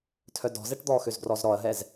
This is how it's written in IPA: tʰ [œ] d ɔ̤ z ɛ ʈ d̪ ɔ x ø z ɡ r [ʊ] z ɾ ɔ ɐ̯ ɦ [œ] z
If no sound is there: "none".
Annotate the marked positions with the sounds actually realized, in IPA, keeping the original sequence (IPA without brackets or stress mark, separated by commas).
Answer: œ, ɔ, ɛ